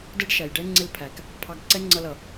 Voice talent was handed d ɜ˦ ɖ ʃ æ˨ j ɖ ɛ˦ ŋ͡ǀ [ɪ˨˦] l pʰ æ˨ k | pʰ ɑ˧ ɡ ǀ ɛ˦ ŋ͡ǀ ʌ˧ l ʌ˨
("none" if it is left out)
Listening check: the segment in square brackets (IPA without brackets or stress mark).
ɪ˦